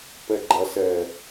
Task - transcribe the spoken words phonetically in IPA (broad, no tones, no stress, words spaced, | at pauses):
pɛɡ͡ǃɐ sɛ